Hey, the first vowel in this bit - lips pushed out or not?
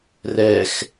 no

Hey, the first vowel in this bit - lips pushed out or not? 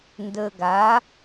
no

